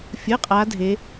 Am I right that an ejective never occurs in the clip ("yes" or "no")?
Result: no